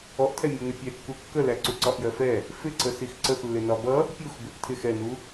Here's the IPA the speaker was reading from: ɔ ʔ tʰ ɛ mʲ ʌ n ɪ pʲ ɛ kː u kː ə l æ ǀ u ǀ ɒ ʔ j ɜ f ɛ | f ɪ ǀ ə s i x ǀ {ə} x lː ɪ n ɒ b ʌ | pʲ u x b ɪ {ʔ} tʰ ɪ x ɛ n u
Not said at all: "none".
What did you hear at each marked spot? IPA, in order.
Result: ə, ʔ

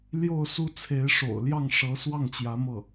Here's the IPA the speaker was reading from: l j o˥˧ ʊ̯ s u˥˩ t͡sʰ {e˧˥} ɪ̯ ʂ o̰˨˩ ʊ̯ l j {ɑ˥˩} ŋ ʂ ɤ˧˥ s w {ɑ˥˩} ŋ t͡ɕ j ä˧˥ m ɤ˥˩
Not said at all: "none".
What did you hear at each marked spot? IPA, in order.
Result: e˧˥, ɑ˥˩, ɑ˥˩

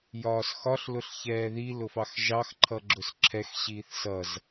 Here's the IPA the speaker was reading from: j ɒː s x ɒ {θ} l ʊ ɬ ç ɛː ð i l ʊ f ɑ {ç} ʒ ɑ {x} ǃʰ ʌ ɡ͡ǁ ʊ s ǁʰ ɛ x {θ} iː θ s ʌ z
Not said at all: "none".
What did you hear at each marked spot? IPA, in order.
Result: ɬ, x, x, ɕ

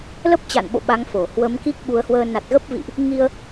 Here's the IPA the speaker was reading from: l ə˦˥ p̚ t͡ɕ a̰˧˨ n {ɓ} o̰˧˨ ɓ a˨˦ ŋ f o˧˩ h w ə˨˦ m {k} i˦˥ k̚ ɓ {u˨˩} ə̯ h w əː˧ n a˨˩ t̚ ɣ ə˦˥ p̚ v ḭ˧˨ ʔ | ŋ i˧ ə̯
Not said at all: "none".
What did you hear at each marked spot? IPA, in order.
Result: ɓ, k, u˨˦

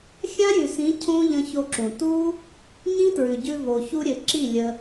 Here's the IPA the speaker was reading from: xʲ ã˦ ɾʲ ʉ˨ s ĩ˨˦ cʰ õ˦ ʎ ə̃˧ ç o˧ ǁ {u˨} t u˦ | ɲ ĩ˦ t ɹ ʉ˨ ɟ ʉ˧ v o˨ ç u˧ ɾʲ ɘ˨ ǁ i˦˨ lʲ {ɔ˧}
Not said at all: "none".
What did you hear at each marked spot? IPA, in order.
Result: ũ˨, ə˧

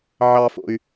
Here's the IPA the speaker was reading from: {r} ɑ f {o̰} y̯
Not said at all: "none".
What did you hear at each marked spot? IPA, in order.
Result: ʕ, o̰

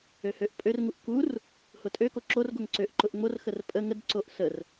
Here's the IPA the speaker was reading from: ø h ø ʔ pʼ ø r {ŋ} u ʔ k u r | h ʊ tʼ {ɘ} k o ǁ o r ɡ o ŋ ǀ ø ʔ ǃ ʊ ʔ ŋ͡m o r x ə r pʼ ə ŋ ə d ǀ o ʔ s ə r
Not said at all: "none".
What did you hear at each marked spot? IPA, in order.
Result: ŋ, ø

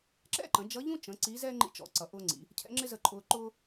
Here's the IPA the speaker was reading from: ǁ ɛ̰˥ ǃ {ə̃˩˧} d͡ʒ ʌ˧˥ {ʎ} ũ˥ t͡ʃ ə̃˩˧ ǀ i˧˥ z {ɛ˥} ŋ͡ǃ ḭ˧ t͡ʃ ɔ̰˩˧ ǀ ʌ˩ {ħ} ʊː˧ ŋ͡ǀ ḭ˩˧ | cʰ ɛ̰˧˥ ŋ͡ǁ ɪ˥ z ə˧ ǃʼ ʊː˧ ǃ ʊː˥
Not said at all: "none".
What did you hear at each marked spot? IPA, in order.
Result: ə̃˩˧, ʎ, ɛ˥, ʔ

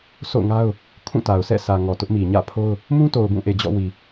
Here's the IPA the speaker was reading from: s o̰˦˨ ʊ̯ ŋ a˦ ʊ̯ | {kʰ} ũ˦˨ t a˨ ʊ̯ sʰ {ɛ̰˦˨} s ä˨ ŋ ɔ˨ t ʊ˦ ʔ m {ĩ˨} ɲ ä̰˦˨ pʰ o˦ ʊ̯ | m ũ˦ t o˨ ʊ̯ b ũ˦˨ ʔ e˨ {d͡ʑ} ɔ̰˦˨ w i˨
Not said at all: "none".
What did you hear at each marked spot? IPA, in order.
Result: kʰ, ɛ̰˦˨, i˨, d͡ʑ

